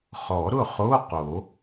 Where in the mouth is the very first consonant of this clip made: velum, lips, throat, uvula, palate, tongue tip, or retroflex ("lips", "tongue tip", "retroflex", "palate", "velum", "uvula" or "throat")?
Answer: uvula